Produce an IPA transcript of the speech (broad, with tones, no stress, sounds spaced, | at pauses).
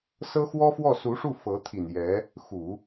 s ɤ˥ x w ɔ˥ f w ɔ˥˩ s u˧˥ ʂ u˥˩ f ɤ˧˥ t̪ʰ i˨˩ n j ɛ˧˥ | x u˨˩˦